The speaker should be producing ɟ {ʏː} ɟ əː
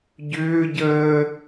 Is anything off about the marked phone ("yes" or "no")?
no